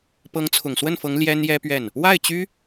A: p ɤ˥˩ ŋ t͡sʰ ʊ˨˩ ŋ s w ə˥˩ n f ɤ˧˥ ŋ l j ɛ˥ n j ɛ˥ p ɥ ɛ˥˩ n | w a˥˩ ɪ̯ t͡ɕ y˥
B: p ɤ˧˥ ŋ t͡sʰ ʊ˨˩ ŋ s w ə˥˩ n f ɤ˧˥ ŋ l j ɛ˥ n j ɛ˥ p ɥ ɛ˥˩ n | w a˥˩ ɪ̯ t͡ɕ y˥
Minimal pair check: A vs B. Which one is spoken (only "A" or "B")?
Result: B